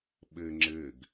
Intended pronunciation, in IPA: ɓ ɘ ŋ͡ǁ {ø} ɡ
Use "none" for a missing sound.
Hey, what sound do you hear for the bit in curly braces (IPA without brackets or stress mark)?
ɘ